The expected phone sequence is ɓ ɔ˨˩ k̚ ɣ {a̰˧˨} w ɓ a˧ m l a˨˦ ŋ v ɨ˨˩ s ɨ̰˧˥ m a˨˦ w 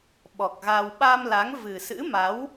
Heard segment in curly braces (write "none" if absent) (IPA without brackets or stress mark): a˧